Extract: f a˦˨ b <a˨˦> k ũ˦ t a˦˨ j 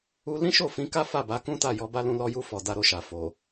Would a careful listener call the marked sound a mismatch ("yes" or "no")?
no